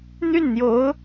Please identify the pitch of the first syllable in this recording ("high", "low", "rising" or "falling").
falling